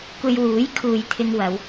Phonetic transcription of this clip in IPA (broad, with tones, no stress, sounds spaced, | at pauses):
kʷ e˧ j w uː˨˥ j kʰ uː˨ j t̪ʰ ɪ˧ ŋ w ɐ˨˧ w